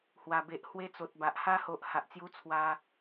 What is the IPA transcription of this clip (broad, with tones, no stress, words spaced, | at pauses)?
hwa˨˩be˨ʔ hwe˧t͡so˨t̚ba˨ʔ ha˧ho˨ʔ ha˨ʔt͡sju˧t͡sʰwa˧